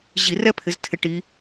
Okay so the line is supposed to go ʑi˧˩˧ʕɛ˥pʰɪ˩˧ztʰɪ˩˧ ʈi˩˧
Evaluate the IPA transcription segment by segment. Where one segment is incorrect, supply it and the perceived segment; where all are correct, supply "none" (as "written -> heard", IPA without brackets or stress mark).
ʕ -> r